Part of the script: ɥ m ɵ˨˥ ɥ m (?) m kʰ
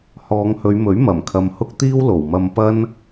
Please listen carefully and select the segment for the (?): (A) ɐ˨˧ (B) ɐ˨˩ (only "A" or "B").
B